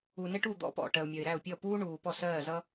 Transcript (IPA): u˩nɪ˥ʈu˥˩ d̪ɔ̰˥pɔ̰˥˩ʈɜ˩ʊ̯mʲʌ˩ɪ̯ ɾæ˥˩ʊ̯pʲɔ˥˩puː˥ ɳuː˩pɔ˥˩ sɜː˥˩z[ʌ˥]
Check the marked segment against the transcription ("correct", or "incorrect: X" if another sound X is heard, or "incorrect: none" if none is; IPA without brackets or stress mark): correct